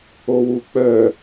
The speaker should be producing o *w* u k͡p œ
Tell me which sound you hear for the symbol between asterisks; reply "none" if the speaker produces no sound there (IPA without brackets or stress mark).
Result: w